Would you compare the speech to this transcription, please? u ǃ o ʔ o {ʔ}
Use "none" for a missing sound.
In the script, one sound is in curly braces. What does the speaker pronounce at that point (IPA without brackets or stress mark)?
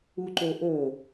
none